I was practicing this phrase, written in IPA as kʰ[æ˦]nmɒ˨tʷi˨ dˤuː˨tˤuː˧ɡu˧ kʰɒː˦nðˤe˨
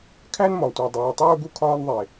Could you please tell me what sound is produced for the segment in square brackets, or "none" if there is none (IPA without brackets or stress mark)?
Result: æ˦